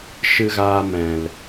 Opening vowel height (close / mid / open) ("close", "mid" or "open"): close